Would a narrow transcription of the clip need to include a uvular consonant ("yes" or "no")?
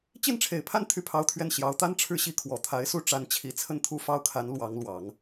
no